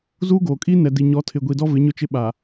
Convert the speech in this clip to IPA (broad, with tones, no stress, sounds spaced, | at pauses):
z uː˦ ɡ oː˨ kʼ i˦ n ɛ˨ d i˨ ɲ ɔ˨˦ tʰ ɪ˨ ɡʷ i˨ d ɔ˦ v ɪ˨˦ ɲ ʊ˦ t͡ʃ ɪ˦ ɓ a˨